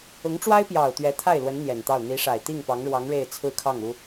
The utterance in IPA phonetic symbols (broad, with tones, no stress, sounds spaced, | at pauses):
ʊ˧˥ ŋ ʈ͡ʂ w a˥ ɪ̯ p j ɑ˨˩ ʊ̯ t̪ ɥ ɛ˧˥ t̪ʰ a˥˩ ɪ̯ l w ə˧˥ n n̪ j ɛ˨˩ n t̪ ɑ˥˩ ʊ̯ n̪ i˧˥ ʂ a˨˩ ɪ̯ t̪ i˥˩ ŋ p ɑ˧˥ ŋ ɻ w ɑ˧˥ ŋ ɻ e˥˧ ɪ̯ t͡sʰ ɹ̩˥˧ kʰ ɑ˥˩ ŋ u˥